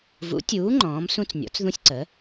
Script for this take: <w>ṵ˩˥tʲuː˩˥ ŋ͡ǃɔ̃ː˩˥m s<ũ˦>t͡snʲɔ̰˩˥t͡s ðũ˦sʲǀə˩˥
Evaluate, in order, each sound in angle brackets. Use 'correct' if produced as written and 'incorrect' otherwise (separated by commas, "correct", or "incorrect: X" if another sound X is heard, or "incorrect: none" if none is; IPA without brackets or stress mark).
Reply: incorrect: v, correct